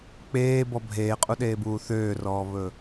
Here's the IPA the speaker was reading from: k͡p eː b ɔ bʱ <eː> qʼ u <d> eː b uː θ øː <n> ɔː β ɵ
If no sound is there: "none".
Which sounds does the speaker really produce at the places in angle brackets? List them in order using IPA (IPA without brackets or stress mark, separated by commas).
eː, ɗ, r